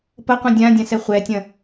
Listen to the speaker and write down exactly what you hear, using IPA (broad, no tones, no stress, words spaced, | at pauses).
pɐqʷɛ̃ dʲãdʲãsɛ χʷɛtʲɐ̃